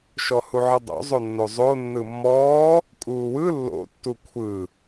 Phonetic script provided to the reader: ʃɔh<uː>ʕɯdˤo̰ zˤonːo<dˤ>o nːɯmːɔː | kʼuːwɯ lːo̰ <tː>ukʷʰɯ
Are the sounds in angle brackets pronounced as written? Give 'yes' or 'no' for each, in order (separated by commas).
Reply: no, no, yes